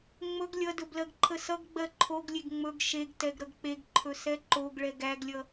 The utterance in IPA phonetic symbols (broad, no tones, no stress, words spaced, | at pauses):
ŋ͡mɵɡ lʲʌdɵ blɜɡǃʰəsʌɡɡ͡bɜ ǃʰoɡlʲeɡ ŋ͡mɵɡ ʃeɡtɛɡ ɾʌɡk͡peɡǃʰɵ sɛǃoɡɭɛ ɡæɡlʲʌ